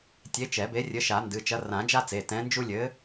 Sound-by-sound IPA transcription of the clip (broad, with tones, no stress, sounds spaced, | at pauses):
tʲ e˨˥ t͡ʃ ɛ˨˩˦ b e˨˥ rʲ ɘ˨˥ ʃ a˨˩˦ n d ɨ˩˧˩ t͡ʃ ɐ˨˥ r ã˨˩˦ d͡ʒ a˦ t͡s e˩˧˩ t ɛ̃˨˥ n d͡ʒ u˦ lʲ ɘ˨˥